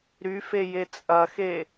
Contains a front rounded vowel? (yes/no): yes